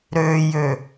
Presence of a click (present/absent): absent